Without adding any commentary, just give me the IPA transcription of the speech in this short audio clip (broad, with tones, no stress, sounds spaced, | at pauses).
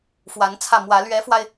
f w a˧˥ n t͡sʰ ä˥˩ m w ä˧˥ l ɥ ɛ˧˥ f w a˧ ɪ̯